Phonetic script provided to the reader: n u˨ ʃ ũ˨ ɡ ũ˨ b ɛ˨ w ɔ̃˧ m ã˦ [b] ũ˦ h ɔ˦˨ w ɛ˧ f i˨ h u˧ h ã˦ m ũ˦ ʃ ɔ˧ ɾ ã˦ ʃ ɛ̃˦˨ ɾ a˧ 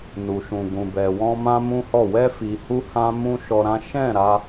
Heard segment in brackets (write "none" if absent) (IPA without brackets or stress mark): m